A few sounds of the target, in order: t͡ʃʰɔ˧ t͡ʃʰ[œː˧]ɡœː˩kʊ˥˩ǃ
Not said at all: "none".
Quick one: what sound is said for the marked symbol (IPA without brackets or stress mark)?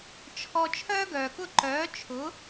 œː˥